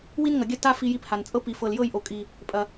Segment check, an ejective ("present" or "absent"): present